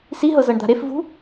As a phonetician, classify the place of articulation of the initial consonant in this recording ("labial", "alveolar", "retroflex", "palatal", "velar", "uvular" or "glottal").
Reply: alveolar